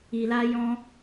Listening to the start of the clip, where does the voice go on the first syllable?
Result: low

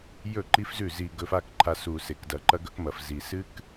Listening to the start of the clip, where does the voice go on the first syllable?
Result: falling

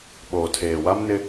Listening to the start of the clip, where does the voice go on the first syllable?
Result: low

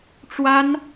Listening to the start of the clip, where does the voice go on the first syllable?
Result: high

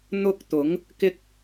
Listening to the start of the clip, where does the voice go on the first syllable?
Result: high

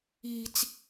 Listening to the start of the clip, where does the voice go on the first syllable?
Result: high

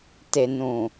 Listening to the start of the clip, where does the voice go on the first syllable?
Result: low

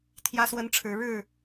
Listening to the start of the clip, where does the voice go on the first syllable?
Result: high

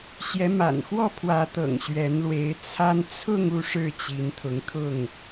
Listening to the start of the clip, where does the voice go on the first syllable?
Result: rising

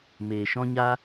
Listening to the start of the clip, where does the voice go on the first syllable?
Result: low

